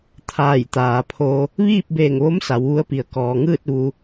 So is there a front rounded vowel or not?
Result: no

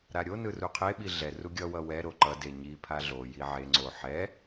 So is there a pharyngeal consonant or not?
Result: yes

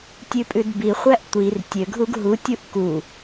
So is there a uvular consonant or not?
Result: yes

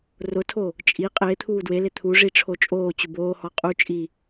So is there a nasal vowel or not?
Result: no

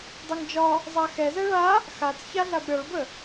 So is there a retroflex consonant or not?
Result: yes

